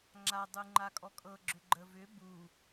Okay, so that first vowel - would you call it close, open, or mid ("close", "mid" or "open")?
open